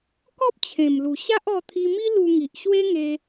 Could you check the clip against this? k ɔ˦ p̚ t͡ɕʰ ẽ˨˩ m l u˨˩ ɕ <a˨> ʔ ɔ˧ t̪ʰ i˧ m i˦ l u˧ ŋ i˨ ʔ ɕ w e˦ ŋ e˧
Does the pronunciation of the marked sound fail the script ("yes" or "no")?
yes